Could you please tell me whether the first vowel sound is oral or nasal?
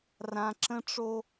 nasal